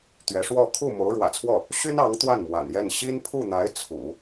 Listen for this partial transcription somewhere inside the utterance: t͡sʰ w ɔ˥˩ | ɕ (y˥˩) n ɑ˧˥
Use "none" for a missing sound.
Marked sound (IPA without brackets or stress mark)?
y˥